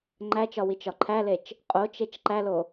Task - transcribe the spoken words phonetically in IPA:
ŋ͡ǃæt͡ʃɒ wit͡ʃɒǃʰælet͡ʃ | qʼot͡ʃet͡ʃ ǃælo

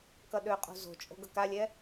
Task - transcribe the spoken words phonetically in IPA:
kʌɗøqʼo̤ zo̤t͡ʃʼo̤ ɡʌkalʲɛ

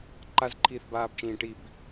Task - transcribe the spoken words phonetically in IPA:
ǃazǃʰiːθbaːbt͡ʃĩː ʈib

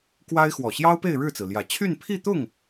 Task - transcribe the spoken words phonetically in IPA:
kwa˥ɪ̯ xwɔ˨˩ɕjɑ˥ʊ̯pe˥˧ɪ̯ ɻɻ̩˥˩t͡sɹ̩˩ljä˨˩ t͡ɕʰy˥˧npʰi˥˧t̪ʊ˥˩ŋ

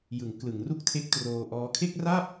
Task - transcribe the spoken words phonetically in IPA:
jɯ˩˦ŋ klɯ˩˦ŋru˥˩k̚tʰe˦˥k̚ troː˧ʔɔː˦˥ kʰe˥˩k̚ra˥˩p̚

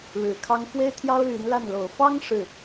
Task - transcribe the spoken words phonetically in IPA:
ɻɻ̩˨˩kʰɑ˥ŋ fwe˥ɪ̯t̪ʰjɑ˥ʊ̯ ly˧˥nla˥˩n lo˨˩ʊ̯fɑ˥ŋ ʂɻ̩˥˩

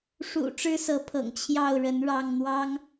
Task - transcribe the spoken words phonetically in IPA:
ʂṵ˨˩ ʈ͡ʂɻ̩˦sɤ˨˦pʰɤ̰˨˩ŋ t͡ɕʰjɑ˥˨ʊ̯ɻə˨˦n ɻɑ˥˨ŋn̪wɑ˦ŋ

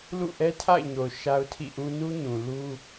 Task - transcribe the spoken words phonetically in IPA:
lṵ˦˨ʔɛ˦tʰa̰˦˨ɪ̯ɲo˨ʊ̯ ʃa˦ʊ̯tʰḭ˦˨ʔũ˦ nu˦ɲũ˨lu˦

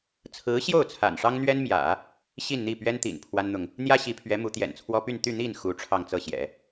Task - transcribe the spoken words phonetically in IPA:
t͡sʰɹ̩˧˥ɕjo˥˩ʊ̯ t͡sʰa̰˨˩nʂɑ˥ŋn̪ɥɛ˥nmjä̰˨˩˦ | ɕi˥˧nn̪i˥˩pɥɛ˥n t̪ḭ˨˩n pʰwa˥nn̪ʊ˨ŋ | n̪jä˥ ɕi˧˥pʰɥɛ˧˥mu˧˥ t̪jɛ̰˨˩nt͡sʰwɔ˥ py˥˧n t̪y˥˧n̪i˥˩n xu˧˥ ʈ͡ʂʰɑ˥˧ŋt͡sɤ˥˩ɕjɛ̰˨˩˦

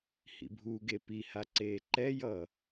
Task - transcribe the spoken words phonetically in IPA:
hḭbʱuɡe piha ǀeːǃɛjʌ

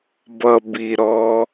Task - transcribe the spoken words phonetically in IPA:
bʌ bi ɾɔ

